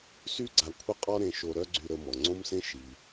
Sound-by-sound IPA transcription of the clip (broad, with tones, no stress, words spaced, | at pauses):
sy˥ɡ͡ǀa˧ kʷʰə˥qʼɔ˥ɾẽ˧ʃo˧ ɾœ˥ɡ͡ǀy˧ɾə˧ mɔ˩ŋ͡ǀõ˥msẽ˥ ʃi˩